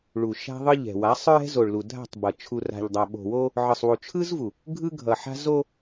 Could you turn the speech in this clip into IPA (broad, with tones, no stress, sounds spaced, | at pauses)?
ɭ u˨ ʃ a̤˦ ðˤ ɯ˦ ʎ ɛ̤˨ w a˨˦ sˤ ɹ ɛ̤˦ z o˨ ɭ l u˨ dʱ a̤˦˨ tˤ b ʌ˨ t͡ʃʰ u˨ r a̤˨ ʎ dˤ a˨ ɓ o̤˨ w o˦ | ʕ ɯ˨ sˤ w u˨ t͡ʃʰ ɯ˦ z v u˨ | ɡʱ ɯ˦ ɡʱ ʌ˨ ħ a̤˦ z o˦